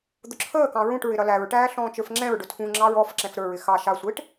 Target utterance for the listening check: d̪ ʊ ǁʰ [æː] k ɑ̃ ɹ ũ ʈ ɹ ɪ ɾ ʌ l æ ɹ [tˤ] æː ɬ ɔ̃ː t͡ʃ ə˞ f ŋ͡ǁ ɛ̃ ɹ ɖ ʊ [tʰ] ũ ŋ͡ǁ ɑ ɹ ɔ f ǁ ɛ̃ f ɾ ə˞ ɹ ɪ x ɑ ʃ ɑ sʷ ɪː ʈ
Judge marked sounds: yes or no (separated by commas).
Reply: no, no, yes